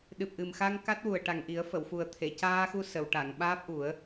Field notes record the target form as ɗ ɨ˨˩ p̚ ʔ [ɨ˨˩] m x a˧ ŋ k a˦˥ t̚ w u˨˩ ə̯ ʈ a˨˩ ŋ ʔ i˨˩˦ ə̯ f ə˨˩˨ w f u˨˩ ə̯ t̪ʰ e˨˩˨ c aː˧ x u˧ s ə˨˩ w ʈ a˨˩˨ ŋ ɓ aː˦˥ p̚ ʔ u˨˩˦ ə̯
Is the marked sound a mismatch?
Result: no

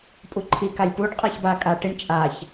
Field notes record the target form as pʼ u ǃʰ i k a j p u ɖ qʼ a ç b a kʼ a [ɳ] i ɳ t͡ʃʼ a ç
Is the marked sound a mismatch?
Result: yes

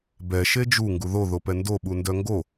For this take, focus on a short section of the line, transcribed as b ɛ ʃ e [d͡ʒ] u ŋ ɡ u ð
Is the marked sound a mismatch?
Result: no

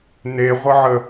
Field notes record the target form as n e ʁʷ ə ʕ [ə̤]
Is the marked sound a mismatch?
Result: yes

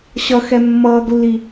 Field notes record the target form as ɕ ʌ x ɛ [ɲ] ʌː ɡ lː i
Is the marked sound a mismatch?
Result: yes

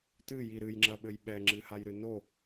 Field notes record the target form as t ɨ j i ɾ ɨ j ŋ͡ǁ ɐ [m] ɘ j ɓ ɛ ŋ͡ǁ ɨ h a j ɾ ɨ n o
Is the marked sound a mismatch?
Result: yes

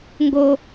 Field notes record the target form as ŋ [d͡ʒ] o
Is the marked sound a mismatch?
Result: yes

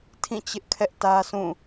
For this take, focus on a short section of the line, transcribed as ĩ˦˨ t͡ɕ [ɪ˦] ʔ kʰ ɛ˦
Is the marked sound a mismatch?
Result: no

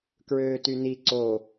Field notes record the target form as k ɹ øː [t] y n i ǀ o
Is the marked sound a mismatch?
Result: no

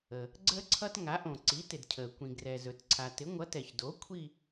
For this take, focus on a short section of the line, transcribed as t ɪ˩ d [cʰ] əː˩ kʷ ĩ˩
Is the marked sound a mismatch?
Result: no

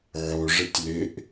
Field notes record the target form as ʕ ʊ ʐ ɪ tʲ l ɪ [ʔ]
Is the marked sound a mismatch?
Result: no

